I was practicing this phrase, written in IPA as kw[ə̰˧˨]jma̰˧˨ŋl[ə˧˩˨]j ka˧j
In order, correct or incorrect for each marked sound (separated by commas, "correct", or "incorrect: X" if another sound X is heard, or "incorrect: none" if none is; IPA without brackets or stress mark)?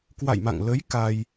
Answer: incorrect: a̰˧˨, incorrect: ə˨˦